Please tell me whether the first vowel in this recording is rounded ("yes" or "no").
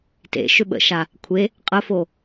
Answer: no